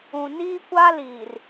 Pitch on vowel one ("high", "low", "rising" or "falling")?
low